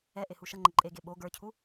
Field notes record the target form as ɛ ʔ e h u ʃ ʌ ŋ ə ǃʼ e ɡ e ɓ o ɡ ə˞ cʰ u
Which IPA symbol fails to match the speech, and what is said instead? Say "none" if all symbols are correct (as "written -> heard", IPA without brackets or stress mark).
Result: ŋ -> ŋ͡ǃ